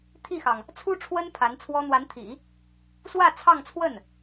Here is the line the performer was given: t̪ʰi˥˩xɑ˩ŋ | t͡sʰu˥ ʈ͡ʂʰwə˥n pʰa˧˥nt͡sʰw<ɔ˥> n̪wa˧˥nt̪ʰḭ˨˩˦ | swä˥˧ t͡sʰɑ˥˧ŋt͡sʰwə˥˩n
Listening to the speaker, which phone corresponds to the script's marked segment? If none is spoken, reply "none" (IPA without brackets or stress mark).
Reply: ɔ˥